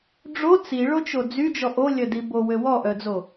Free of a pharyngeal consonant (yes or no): yes